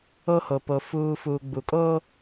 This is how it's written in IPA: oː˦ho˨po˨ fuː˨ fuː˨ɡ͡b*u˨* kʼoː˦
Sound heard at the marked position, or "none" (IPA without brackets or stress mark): u˨